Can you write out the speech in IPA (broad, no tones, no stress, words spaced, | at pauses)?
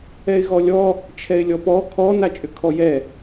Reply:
ɛɪ̯ɣɔlʲɔ | t͡ʃʰɛɪ̯lʲɔpɔ kʰɔ nat͡ʃʼʏkʰɔjɛ